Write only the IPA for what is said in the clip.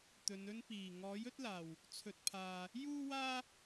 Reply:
t̪ ɵ˨˧ n ɵ˥ n p iː˨˩ ŋ ɔː˨˥ j ɵ˥ t̚ l aː˨˩ w | t͡sʰ ɵ˨ t̚ pʰ aː˨ | j uː˥ w aː˥

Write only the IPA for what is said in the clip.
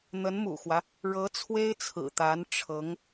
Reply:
n̪ ə˧˥ n m ṵ˨˩ x w ä˦ | ɻ ɤ˧˥ t͡sʰ w e˥ ɪ̯ t͡sʰ ɹ̩˨˩ t̪ a˧˥ n ʈ͡ʂʰ ɤ˧˥ ŋ

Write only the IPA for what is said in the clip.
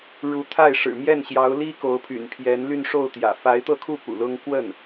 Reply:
ɻ u˧˥ t̪ʰ a˥˩ ɪ̯ ʂ ɻ̩˨˩ m j ɛ˥˩ n ɕ j ɑ˧˥ ʊ̯ l i˥ k o˧˥ ʊ̯ pʰ y̰˨˩ n pʰ j ɛ˧˥ n l y˥˧ n ʂ o˥˩ ʊ̯ t̪ j ä̰˨˩ f a˧˥ ɪ̯ t̪ ɤ˥˧ kʰ u˥˩ p ṵ˨˩ l ʊ˥ ŋ k w ə˥˩ n

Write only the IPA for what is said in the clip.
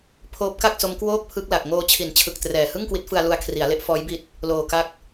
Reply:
pʰ oː˦˥ p̚ k a˥˩ k̚ s o˦˥ m k w oː˥˩ k̚ pʰ ɯ˦˥ k̚ l a˨˩ k̚ ŋ oː˧ t͡ɕʰ i˩˦ n t͡ɕʰ ɯ˨˩ k̚ t r ɛː˨˩ h ɯ˥˩ ŋ k w i˦˥ t̚ f ɯ˧ a̯ l u˧ a̯ kʰ r i˩˦ a̯ l e˦˥ ʔ f ɔː˦˥ j b i˦˥ t̚ | l oː˨˩ k a˦˥ k̚

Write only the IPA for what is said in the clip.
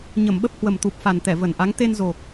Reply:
ɲ ə˧˩ m ɓ ə˦˥ p̚ h w ə˨˩ m t̪ u˨˩ p̚ f a˨˩ n t̪ ɛ˧˩ v ə˧˩ n ʔ a˨˦ ŋ t̪ e˧ n z o˨˩ k̚

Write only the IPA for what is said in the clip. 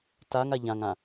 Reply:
t a ŋ a ʎ ã ŋ ã

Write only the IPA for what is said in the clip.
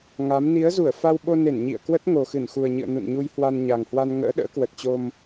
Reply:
ŋ a˨˦ m n i˨˦ ə̯ z u˧˩ ə̯ f a˧ w ɓ o˧ n e˧˩ n ɲ ḭ˧˨ ə̯ k w ə˦˥ t̚ ŋ o˨˩ x ɨ˧˩ n x u˨˩ ə̯ ɲ ɨ̰˧˨ ə̯ n ṵ˧˨ n ɲ u˧ j h w a˧ n ɲ a˨˩ ŋ h w a˧ n ŋ ə̰ː˧˥ ɗ ə̰ː˧˥ k w ə˨˩ t̚ t͡ɕ o˧ m

